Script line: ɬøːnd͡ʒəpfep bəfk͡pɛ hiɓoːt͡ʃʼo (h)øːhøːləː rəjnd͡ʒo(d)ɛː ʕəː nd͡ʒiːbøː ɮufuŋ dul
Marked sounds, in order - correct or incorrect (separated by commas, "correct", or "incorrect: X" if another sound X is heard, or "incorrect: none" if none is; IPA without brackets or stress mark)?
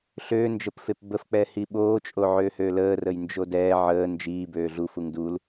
incorrect: ʕ, correct